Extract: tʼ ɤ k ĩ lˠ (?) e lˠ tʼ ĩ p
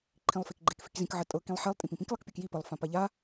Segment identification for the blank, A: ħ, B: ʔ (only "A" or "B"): A